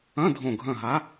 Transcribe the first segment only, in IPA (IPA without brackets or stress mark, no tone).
ɐ̃